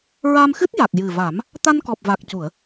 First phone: ɹ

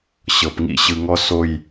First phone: ɕ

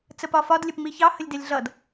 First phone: t͡s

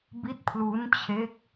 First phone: b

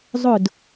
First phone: zˤ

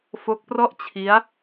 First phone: f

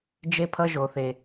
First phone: d͡ʒ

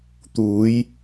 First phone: t̪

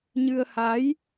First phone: ɲ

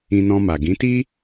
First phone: ĩ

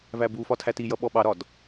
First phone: v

